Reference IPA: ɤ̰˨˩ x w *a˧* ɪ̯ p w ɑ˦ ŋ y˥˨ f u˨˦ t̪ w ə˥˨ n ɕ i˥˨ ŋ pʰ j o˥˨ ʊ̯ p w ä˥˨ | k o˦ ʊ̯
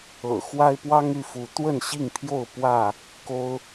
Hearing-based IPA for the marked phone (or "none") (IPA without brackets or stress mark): a˦